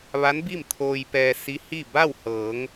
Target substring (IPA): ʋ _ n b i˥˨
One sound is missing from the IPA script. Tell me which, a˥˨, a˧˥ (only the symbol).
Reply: a˧˥